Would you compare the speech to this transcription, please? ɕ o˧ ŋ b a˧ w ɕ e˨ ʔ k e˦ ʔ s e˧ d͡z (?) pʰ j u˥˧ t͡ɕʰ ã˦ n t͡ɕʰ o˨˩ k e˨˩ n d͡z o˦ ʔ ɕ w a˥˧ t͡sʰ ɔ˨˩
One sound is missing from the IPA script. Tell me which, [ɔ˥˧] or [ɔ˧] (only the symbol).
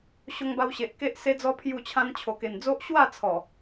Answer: ɔ˧